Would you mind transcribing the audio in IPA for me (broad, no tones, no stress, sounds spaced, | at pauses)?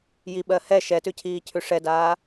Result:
j i ɓ ɜ h ɛ ʃ ɛ t ʉ cʰ iː cʰ ʉ ʂ ɛ d aː